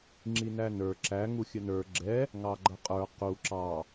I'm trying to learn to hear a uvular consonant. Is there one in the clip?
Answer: yes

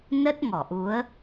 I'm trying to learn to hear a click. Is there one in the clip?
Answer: no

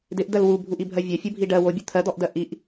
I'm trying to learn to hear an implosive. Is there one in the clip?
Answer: no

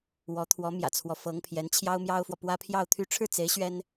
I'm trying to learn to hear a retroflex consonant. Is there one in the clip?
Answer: yes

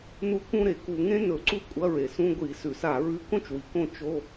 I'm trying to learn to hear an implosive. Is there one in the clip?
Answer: no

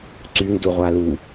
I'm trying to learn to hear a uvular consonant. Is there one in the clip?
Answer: yes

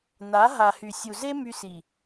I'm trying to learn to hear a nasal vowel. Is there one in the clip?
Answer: no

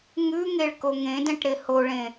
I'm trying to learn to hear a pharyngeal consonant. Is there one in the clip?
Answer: no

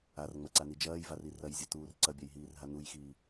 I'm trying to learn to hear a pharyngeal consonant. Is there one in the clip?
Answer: no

